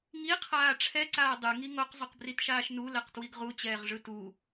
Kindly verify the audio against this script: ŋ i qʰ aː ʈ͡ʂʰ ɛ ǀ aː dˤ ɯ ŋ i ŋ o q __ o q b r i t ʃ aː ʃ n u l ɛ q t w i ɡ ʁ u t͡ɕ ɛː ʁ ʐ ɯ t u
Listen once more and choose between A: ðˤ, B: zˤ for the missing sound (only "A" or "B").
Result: B